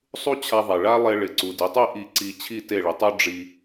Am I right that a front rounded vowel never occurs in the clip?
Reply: yes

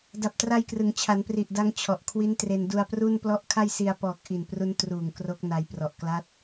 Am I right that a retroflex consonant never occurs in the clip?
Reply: yes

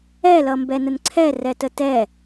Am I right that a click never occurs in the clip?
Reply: no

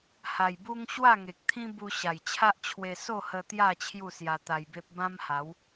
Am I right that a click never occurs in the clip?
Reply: yes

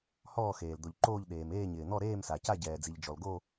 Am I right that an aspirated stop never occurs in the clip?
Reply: yes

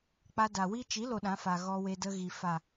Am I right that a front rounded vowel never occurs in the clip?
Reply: yes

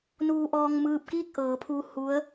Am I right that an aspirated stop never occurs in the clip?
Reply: no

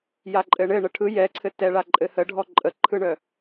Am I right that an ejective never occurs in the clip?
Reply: no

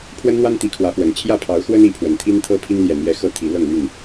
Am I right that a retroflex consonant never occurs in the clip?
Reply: yes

